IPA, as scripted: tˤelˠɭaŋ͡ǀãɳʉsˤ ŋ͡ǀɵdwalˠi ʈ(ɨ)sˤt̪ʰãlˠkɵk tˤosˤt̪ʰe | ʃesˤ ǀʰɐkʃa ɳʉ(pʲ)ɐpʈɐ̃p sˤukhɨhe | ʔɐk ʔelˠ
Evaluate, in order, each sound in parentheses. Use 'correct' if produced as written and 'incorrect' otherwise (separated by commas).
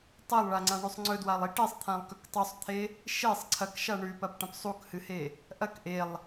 incorrect, incorrect